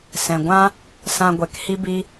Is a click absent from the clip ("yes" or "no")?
yes